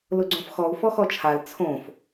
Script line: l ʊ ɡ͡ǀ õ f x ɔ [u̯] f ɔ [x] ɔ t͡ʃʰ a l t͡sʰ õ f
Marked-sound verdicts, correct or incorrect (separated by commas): correct, correct